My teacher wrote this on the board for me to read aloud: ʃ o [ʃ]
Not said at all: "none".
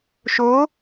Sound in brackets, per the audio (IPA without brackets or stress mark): none